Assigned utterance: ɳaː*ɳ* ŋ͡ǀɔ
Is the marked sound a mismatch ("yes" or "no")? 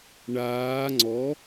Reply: yes